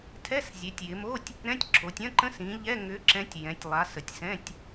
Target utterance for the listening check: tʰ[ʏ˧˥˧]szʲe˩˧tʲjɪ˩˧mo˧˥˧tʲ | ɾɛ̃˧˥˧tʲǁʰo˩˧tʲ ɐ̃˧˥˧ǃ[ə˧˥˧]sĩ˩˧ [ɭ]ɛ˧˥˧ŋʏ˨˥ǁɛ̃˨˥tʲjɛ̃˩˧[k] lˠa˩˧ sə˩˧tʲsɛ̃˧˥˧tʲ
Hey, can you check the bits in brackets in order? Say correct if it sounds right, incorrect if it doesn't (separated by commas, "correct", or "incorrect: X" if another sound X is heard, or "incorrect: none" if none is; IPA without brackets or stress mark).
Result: incorrect: ɛ˧˥˧, incorrect: ə̃˧˥˧, incorrect: ʎ, incorrect: tʲ